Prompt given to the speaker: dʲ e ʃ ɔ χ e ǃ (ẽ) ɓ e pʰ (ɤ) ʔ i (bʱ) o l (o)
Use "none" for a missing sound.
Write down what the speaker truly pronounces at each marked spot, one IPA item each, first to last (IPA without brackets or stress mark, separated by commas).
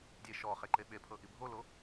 e, ɤ, bʱ, o